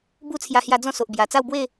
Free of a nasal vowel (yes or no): no